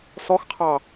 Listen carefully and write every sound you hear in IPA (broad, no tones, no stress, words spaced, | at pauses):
sɔxqʰɑ